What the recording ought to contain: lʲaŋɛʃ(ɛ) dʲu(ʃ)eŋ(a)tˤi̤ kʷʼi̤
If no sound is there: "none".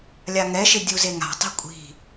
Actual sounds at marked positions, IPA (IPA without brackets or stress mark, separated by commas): ɪ, z, a̤